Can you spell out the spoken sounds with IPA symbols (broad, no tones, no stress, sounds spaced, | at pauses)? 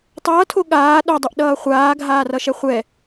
tˤ ʌː tʰ o ɠ aː ɗ o dˤ o ʔ ɗ ʌː χʷ aː ɡʱ aː r ʌ ʃ ɛ χʷ ɛ